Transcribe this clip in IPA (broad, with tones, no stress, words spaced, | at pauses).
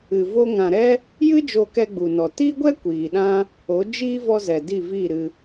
ɨ˨vo˧ ŋã˨ɾɛ˦ | jɨ˦ d͡ʒo˧kɛ˧ɡ͡bu˨nɔ˨ tiː˦ɡʷɛ˦ kʷiː˨ɗã˦ | o˨˦d͡ʒiː˦ vɔ˧zɛ˨ di˦˨viː˦˨ɾɨ˧